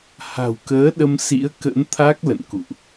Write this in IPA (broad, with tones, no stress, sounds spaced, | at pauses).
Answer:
h a̤˨˩ w k əː˨˦ ɗ ə˧ m s ḭ˧˥ ə̯ k ə̰˧˥ n t̪ʰ a˦˥ k̚ l ə̰˧˨ n k ṵ˧˨ ʔ